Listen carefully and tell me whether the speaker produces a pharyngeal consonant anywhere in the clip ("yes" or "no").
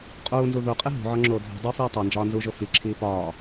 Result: yes